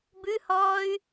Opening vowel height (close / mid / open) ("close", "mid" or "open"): close